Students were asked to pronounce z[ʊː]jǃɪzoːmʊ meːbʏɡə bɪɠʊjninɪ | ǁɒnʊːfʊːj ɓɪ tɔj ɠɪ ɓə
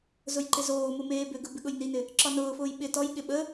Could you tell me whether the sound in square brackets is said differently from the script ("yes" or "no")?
yes